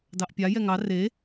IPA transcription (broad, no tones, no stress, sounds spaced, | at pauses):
d ɑ ʔ pʲ a j ɛ ŋ ɑ r e